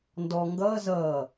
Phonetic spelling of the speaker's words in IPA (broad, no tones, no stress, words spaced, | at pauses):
ndɔ ŋɡʌː zʌː